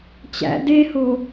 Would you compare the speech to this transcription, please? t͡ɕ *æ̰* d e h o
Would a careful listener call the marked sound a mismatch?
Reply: no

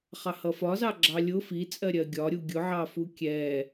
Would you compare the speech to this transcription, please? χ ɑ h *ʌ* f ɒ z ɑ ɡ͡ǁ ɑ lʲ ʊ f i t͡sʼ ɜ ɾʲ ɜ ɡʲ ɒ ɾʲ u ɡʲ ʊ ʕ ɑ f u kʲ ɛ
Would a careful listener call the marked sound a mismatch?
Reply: no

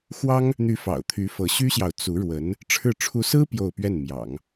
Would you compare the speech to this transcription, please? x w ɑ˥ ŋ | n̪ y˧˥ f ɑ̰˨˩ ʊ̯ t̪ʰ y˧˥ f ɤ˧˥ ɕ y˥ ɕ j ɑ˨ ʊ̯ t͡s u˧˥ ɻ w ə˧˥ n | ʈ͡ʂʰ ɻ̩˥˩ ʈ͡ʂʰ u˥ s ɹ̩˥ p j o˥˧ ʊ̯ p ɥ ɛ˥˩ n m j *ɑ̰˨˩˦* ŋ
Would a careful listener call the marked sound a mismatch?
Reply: no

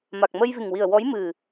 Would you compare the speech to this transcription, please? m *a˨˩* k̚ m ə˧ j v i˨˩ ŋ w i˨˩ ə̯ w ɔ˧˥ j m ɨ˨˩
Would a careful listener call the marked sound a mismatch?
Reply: no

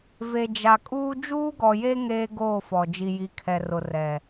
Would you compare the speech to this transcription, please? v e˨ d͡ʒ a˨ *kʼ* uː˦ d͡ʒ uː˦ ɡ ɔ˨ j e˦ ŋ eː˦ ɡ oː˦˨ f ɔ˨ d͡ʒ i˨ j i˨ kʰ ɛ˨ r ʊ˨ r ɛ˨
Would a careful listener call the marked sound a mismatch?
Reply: no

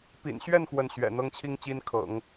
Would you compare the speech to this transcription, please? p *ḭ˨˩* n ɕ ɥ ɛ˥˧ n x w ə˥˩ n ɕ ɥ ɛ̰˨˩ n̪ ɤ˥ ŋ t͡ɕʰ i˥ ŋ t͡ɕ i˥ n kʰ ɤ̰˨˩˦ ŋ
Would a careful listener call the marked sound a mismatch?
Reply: no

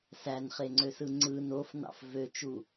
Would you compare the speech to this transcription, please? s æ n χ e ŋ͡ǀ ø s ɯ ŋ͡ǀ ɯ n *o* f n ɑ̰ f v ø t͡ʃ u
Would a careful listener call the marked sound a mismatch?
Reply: no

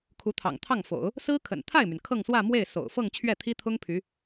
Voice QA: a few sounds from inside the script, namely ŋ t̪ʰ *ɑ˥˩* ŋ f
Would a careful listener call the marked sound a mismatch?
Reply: no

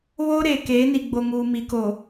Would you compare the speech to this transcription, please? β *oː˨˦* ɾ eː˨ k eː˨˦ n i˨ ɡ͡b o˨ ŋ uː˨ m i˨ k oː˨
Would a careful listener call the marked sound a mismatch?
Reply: yes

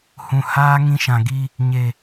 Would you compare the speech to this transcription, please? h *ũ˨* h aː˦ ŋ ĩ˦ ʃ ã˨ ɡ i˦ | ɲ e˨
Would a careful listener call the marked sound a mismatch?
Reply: no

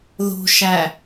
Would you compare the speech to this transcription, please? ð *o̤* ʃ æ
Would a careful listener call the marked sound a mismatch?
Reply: no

